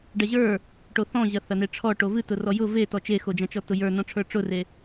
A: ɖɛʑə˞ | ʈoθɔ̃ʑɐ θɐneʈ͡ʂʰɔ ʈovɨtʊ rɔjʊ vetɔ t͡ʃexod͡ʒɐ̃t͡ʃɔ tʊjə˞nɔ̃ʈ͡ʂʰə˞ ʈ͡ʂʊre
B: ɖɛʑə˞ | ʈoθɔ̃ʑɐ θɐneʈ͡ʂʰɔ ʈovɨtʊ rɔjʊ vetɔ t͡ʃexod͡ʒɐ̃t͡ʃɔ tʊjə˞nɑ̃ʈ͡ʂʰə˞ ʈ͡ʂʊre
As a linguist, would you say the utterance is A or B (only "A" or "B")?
A